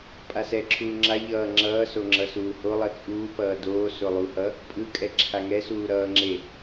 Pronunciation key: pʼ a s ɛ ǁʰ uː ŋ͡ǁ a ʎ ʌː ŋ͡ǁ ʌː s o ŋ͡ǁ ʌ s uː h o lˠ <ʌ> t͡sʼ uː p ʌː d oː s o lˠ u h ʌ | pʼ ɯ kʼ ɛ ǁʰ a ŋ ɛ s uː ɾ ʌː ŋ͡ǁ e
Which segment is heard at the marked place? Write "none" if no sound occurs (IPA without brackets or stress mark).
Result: ʌ